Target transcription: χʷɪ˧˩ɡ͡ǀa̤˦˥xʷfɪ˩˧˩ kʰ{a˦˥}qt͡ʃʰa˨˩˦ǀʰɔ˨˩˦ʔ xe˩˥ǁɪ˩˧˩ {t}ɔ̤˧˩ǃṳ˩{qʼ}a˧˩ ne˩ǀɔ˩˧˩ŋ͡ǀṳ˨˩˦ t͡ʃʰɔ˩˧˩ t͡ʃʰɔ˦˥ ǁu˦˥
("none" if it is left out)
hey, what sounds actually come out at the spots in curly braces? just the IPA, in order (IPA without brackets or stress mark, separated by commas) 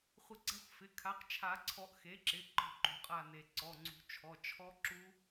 a˩˥, ǃ, qʼ